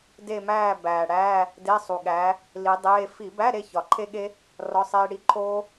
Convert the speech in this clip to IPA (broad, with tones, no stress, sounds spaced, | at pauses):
d e˦˨ m æː˦˨ b æː˨˩ ɽ æː˧˥˧ | d e˧˥˧ sˤ u˨˩ ɠ æː˨˥ | l i˨˥ dˤ eː˧˥˧ f i˧˩˧ b æ˧˥˧ ɾ e˦˨ ç ɒ˨˩ ǃʰ e˦˥ ɠ e˦˥ | r ɒ˧˥˧ sˤ eː˦˥ ɽ i˦˥ ǃʰ oː˦˥